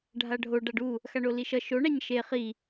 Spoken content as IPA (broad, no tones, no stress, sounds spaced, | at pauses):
ɖʱ a ɖʱ o ɖ a ɖ u | x a ɳ o l i ʃ ʌ ʃ o ɳ a ɲ ʃ e χ i